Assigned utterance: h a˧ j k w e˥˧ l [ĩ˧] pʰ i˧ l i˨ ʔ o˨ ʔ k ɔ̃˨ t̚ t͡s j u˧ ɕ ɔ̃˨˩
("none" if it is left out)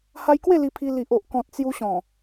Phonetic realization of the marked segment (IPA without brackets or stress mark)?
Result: i˧